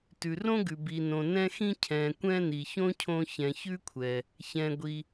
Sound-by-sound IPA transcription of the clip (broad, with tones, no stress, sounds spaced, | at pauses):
t ʉ˩ r õ˥ ɡ ʉ˩ b i˩ n õ˩ n ɛ̃˧ x ĩ˧ cʰ ɛ̃˩ kʷ ɛ̃˧ n i˩ ç õ˥ cʰ õ˧ ç ɛ̃˩ ç ʉ˥ kʷʰ ɛ˩ | ç ɛ̃˩ ɡʷ i˩